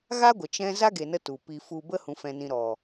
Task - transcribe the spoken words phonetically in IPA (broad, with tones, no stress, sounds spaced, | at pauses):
ɣ a˦ ɡʷ ə˨ t͡ʃ ɛ̃˦ z a˦ ɡ e˨ n ə˦ t u˨ p i˧ f u˧ b ə˦ h ũ˨ f ɛ̃˨ n ĩ˨ ɾ ɔ˨